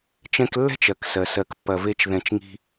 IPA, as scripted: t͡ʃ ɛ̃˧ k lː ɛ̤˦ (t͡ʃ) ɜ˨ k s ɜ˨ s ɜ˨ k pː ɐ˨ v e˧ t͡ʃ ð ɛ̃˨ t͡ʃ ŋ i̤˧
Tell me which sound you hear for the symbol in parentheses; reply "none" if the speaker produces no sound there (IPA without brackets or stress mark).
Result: t͡ʃ